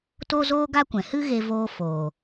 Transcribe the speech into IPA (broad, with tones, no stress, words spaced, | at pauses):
toː˦zoː˦ɡa˦ kʷɛ̃˨hɨ˦ɣe˧ voː˧foː˨